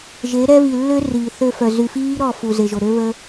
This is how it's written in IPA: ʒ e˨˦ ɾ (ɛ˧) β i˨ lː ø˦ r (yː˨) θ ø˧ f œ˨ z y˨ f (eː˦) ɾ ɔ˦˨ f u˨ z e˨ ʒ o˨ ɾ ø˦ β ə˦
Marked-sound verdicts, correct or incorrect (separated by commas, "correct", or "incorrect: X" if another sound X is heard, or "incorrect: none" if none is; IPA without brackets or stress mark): incorrect: ɛ˦, incorrect: iː˨, incorrect: iː˦